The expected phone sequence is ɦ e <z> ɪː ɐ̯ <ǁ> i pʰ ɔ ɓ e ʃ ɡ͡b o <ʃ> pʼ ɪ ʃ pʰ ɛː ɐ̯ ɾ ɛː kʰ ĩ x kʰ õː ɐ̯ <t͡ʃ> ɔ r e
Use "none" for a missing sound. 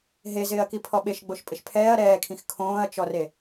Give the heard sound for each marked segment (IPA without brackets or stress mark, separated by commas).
z, k, ʃ, t͡ʃ